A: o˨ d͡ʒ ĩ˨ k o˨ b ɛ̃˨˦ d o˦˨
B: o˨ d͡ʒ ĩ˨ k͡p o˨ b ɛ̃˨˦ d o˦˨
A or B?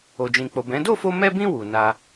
B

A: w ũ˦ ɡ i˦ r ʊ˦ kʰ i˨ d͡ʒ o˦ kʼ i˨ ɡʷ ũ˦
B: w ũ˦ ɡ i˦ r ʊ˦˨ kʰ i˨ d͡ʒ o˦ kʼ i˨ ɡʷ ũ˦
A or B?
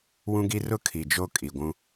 A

